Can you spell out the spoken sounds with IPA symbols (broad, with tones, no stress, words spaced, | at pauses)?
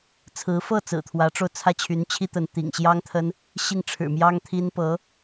t͡sʰɹ̩˧˥fɤ˥˩ t͡sɹ̩˨˩t̪ʰwä˧˥ʈ͡ʂo˧ʊ̯t͡sʰä˥˩ t͡ɕʰy˧˥nt͡ɕʰi˥ t̪ə˧˥nt̪ḭ˨˩ŋ ɕjɑ˥ŋt̪ʰə˥n | ɕi˥˩ŋʈ͡ʂʰɻ̩˨˩mjɑ˥ŋ t̪ʰi˥n pɤ˧˥